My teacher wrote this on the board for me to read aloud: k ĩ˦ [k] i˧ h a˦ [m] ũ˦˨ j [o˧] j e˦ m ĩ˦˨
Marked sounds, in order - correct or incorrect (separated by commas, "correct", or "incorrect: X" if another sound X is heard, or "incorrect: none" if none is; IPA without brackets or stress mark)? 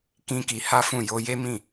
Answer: correct, incorrect: f, correct